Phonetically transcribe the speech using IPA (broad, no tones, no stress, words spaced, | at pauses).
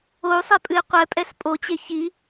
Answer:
ou̯sˤɛpʼɨi̯ qʷɛpʼɛs pʼot͡ɕe çi